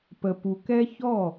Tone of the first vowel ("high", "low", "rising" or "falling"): low